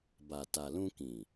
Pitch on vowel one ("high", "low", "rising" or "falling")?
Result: low